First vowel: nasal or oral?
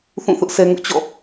nasal